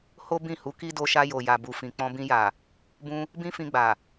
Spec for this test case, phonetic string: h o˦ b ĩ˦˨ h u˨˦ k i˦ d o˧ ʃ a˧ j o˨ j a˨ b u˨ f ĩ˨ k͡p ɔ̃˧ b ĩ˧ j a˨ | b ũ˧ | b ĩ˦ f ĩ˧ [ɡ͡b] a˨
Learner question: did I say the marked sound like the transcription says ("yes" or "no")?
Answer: yes